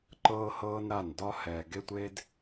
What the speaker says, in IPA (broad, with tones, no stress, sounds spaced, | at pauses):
ǃ ɤː˦ h ɤː˦ n ɾ a˦˨ n d ɒ˦ h ɛː˨ ɡ e˦ tʷ eː˦ d